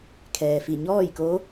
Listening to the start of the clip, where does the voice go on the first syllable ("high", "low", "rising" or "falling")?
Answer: low